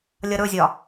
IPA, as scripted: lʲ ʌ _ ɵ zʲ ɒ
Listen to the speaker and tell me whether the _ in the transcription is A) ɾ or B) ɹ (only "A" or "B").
A